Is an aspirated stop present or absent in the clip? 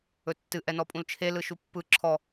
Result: present